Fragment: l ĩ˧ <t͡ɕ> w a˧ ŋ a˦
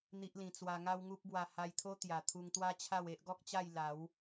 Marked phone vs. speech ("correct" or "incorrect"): incorrect